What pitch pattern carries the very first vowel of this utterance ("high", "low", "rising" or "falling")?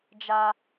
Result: high